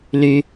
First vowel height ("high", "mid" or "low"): high